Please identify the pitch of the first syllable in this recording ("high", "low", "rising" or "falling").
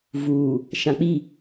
low